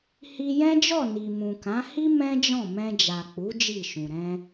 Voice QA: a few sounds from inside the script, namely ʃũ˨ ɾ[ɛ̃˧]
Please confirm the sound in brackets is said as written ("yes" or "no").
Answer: yes